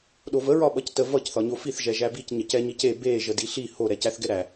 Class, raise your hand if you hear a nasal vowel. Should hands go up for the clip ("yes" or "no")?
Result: no